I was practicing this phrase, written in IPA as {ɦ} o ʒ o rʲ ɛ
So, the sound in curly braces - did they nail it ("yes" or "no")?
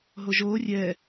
yes